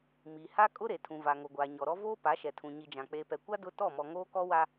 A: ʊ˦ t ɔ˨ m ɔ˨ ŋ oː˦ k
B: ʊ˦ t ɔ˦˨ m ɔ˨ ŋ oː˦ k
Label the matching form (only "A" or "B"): B